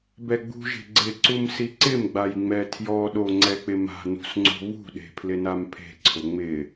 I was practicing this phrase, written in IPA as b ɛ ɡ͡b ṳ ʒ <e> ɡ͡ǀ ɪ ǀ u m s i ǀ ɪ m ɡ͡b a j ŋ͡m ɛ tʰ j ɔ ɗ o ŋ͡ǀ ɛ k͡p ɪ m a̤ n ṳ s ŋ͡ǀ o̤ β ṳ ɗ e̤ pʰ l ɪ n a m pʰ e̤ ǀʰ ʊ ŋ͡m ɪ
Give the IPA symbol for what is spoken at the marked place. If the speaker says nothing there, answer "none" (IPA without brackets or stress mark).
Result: e̤